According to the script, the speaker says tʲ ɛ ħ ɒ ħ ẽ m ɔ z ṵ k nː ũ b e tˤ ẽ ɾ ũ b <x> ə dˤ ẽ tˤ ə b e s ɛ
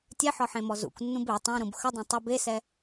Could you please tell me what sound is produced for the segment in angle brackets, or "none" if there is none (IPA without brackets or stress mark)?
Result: x